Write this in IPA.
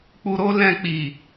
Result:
k͡p u˧ ɾ o˦ l ɛ̃˧ k͡p i˨

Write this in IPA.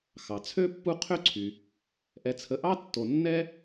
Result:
x ɑ˩ t͡sʰ ø˥ pː u˦ qʰ ø˦ ǀʰ y˩ | ʔ ɛ˨ t͡sʰ ə˨ ʔ ɑ˥ tː o˨ nː ɛ˥

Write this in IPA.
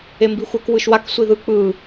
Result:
e m b i xʷ ə˞ k w ɯ ʃ w a k sʷ i ð ɯ k͡p ɯ

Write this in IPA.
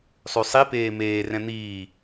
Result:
sˤ ʉ sˤ i p eː m eː r ɛ̃ n̪ iː

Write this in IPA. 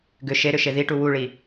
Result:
ɡ ʏ ʃ e ɾ ʏ ʃ e ð i ʈ u w u ɭ i

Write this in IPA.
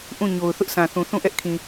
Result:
ʔ ũ˦˨ ɲ o˨ ʊ̯ θ ʊ˦ ʔ sʰ ã˨ θ ũ˨ θ ũ˦˨ ʔ ɛ˦ ʔ kʰ ĩ˨

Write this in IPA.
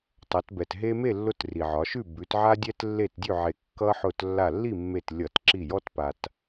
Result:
tˤ ʌ˩˧ t b ɛ˩ t ɦ e˦ m e˥˨ lː ʊ˦ t r i˩ ʕ ɒ˩˧ ʃ ʉ˥˨ b ʉ˩˧ t ʕ a˦ dʲ ɛ˦ t lː e˧˩ t dʲ ʉ˧˩ ʕ e˩ kː ʌ˦ ħ ʊ˧˩ t lː a˧˩ lː i˥˨ mː e˧˩ t lʲ ʌ˧˩˧ t ǁ i˧˩ j ɔ˦ t p a˩ t

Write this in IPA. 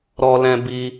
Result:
ɾ ɔ˧ l ɛ̃˧ b i˧

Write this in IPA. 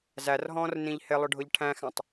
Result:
z æ r ɦ ɔ̃ː r n ĩ ʎ h ɪ lˠ ʊ ɖʱ ʊ ʎ ʈʰ æ̃ x æ̃ tˤ

